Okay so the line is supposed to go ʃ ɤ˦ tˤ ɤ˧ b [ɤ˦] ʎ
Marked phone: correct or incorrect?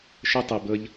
correct